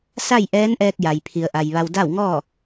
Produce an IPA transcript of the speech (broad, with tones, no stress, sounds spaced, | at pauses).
s a˥˨ j ʔ ɛː˧˥ n ʔ ɛː˧ k̚ j a˩ j pʰ i˩ ə̯ ʔ a˩ j ʋ a˧ w d a˥˨ w ŋ ɔː˥˨